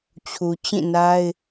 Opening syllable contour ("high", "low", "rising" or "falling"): low